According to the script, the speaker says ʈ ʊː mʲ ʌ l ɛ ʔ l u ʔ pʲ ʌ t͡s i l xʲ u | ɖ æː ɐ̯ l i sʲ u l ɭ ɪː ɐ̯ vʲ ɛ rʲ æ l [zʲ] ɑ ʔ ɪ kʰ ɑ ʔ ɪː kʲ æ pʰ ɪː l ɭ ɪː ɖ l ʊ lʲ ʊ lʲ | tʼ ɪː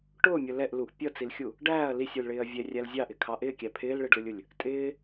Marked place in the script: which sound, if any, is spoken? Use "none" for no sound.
zʲ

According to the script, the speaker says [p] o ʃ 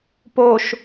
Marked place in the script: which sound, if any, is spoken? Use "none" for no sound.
p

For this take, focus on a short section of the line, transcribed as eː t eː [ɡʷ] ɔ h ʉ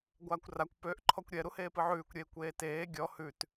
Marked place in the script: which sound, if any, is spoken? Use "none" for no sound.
ɡʲ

